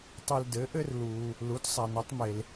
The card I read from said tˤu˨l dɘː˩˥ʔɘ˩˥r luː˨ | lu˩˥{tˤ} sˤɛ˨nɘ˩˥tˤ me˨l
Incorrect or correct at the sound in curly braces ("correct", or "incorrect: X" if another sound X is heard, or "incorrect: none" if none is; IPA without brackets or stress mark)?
incorrect: t